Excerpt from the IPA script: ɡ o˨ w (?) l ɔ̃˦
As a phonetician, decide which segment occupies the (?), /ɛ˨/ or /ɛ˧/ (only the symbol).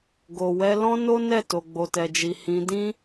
ɛ˧